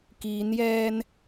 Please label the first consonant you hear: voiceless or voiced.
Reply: voiceless